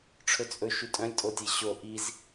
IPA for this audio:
ʈ͡ʂʰ ɵ t͡sʼ ɵ ʃ y tʼ œ̃ lʲ tʼ o tʲ e ɕ o ʔ i z

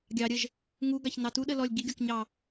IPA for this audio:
ɡʲ ɑ ɾʲ ə ʒ | ŋ u ɡ ɑ ç n ɑ t u ɗ ə l ɔ lʲ ɡ i ɡʲ ɔ k ɲ ɑ

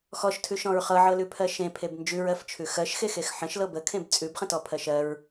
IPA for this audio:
x ɔ ʃ tʰ ʉ ʃ ɔ̃ ɹ χ ɤ ʕ ɤ l ʉ pʰ ɜ ʃ ẽ pʰ e b n d͡ʒ ʉ ɹ ɜ f t͡ʃʰ ʉ x ɜ ʃ x e x e x ħ ə̃ ʃ l ɤ b ə kʰ ẽ b t͡sʼ ʉ b χ ə̃ t ɔ pʰ ɜ ʃ ɜ ɹ

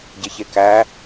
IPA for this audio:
ɟ e ç e k æ

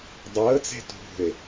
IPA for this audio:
dˤ əː t͡s e̤ t ṳ e̯

